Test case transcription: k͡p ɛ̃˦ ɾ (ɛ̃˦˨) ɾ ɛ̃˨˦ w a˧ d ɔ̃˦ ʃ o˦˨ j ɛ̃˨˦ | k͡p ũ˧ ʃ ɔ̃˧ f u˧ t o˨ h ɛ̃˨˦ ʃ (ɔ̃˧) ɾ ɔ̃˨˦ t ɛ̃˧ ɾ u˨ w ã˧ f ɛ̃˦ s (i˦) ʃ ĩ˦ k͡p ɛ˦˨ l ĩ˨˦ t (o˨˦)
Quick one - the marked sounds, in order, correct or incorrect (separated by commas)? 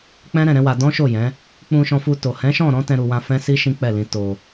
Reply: correct, incorrect, correct, incorrect